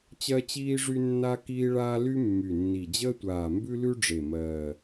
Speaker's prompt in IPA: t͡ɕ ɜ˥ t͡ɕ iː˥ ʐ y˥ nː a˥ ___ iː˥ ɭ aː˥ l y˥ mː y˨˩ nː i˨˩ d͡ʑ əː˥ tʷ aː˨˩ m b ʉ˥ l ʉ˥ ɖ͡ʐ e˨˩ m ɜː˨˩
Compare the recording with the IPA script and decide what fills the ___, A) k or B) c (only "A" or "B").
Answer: A